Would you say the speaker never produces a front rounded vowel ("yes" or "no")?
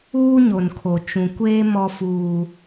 yes